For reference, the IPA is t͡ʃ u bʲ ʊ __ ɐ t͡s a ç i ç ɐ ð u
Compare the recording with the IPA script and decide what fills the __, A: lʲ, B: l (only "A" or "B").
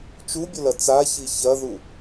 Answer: B